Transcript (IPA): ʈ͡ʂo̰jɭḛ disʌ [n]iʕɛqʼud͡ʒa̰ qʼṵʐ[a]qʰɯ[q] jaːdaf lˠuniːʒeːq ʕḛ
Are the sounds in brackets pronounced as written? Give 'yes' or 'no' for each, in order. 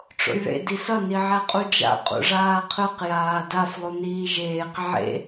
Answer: yes, no, yes

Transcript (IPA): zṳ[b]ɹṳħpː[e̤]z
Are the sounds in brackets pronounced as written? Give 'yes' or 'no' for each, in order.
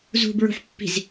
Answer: yes, no

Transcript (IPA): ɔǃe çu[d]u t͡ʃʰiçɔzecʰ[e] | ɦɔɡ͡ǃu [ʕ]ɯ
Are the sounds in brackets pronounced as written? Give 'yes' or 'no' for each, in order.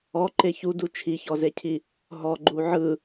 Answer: yes, no, yes

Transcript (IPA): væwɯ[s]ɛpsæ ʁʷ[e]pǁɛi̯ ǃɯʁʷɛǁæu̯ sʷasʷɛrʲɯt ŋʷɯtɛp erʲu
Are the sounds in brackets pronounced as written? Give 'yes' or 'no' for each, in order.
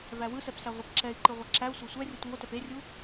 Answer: yes, yes

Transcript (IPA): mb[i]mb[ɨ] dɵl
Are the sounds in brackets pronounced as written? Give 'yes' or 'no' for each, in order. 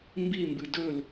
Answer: yes, yes

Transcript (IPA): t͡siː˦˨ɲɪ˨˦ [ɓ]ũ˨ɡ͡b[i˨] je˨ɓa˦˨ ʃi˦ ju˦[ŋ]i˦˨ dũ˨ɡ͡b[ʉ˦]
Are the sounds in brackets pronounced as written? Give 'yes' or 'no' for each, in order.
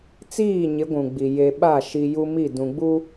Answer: no, yes, no, no

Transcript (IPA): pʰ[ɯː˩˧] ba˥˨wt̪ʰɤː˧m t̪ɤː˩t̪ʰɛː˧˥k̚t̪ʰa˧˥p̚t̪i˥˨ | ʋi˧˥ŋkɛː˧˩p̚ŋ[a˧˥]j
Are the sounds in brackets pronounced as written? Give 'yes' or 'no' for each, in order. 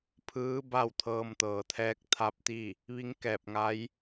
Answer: no, yes

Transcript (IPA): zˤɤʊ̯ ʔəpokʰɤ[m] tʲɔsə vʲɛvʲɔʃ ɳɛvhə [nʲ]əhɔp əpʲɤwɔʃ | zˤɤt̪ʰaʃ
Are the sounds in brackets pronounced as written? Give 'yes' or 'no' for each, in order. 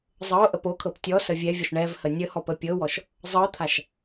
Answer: no, yes

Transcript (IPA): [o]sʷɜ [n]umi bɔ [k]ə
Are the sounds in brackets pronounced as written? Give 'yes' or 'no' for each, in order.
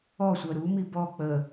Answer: no, no, no

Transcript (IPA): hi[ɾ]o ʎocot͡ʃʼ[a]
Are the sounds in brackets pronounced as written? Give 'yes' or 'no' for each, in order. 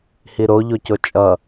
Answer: yes, no

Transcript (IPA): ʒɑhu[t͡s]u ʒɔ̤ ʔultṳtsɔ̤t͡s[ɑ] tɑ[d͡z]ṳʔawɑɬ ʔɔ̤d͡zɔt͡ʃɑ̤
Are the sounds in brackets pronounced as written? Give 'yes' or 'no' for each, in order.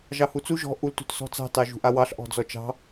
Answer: yes, no, no

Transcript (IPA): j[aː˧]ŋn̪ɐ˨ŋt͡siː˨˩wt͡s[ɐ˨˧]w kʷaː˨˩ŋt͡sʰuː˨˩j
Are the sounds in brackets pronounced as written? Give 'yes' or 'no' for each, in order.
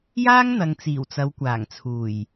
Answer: no, yes

